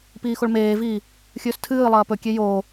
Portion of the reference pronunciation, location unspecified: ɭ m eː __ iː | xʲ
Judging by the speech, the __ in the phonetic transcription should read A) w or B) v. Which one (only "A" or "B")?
B